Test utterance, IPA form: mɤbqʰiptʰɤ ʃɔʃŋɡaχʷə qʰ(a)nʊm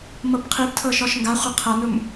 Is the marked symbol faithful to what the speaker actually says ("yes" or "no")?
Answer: no